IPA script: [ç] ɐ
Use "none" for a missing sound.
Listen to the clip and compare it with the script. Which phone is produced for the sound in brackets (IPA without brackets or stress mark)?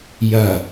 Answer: j